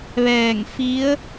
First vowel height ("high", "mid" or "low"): mid